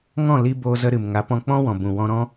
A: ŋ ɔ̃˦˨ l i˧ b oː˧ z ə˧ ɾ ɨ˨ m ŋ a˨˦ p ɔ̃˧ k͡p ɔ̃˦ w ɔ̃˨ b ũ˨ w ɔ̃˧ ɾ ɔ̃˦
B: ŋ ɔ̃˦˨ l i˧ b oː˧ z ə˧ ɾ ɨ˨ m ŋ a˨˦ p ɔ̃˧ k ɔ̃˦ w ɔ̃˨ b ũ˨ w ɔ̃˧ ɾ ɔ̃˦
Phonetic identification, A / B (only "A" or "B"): A